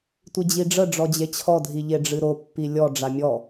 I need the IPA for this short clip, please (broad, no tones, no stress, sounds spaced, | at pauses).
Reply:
tʷ i d͡ʑ i ɖ͡ʐ ə ɖ͡ʐ ɔ d͡ʑ e t͡ɕʰ ɔ dʱ i ʎ e ɖ͡ʐ ɨ ɾ o pː i lʲ ɔ ɖ͡ʐ a mʲ ɔ